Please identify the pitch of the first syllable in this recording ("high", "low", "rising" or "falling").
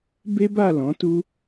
high